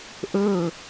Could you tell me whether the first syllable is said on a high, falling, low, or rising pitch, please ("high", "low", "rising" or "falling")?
falling